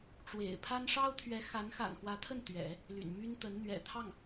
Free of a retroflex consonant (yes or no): no